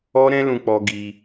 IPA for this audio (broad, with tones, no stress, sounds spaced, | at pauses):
ɔ˦ ɾ ɛ̃˦ l ũ˧ k͡p ɔ˧ ɡ i˧